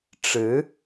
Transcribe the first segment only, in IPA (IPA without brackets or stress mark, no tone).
ʈ͡ʂ